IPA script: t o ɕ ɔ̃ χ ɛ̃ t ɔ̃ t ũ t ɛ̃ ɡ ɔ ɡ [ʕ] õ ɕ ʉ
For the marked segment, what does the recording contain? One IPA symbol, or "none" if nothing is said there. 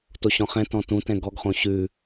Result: χ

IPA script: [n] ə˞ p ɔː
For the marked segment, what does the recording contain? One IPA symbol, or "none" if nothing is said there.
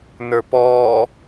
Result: n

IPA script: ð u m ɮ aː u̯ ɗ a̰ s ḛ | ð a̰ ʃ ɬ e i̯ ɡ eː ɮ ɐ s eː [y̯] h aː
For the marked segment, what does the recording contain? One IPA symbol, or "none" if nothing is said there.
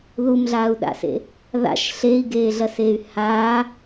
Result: y̯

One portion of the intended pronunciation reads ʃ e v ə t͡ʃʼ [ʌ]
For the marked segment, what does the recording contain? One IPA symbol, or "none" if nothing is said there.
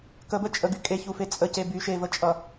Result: ʌ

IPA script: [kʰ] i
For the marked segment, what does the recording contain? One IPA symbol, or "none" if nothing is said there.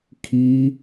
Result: kʰ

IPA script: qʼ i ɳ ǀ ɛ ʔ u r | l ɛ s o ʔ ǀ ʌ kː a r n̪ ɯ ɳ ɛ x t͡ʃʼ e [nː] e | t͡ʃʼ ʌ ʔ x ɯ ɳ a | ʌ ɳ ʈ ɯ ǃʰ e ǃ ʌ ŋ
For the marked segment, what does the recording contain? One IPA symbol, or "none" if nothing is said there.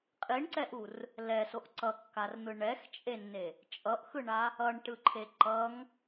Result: nː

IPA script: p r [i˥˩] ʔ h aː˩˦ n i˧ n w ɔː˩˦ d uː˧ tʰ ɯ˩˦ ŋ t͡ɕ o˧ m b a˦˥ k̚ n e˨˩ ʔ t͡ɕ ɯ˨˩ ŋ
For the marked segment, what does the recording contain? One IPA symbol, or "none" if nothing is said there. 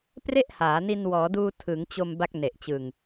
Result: e˥˩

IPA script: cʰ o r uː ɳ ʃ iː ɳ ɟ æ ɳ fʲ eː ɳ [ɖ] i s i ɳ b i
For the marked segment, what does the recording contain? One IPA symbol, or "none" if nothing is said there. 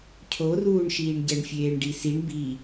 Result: ɖ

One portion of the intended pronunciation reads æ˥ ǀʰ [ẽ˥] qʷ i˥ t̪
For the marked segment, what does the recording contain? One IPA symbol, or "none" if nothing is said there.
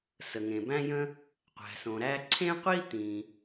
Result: ẽ˥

